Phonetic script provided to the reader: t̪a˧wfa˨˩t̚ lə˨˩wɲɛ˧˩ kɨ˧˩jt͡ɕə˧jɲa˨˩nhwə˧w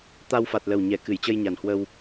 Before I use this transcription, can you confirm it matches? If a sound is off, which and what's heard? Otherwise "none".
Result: none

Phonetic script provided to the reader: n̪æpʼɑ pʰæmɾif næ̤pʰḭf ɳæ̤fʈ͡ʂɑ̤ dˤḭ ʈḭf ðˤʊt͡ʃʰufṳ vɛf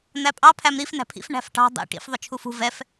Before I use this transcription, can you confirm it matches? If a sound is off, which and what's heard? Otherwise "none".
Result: ʈ͡ʂ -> ʈ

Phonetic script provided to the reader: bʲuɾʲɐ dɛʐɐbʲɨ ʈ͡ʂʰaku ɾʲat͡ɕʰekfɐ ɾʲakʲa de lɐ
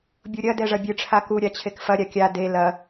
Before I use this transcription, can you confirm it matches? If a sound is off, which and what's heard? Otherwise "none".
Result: none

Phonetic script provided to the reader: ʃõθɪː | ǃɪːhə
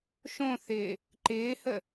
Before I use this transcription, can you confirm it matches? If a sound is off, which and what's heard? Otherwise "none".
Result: none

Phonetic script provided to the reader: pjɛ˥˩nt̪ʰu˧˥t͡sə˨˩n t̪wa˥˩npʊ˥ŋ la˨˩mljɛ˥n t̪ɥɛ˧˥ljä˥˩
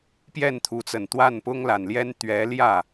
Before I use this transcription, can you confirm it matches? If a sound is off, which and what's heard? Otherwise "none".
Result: m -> n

